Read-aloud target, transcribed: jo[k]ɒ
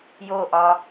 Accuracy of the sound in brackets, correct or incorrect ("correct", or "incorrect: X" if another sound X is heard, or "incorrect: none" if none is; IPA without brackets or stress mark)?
incorrect: ʔ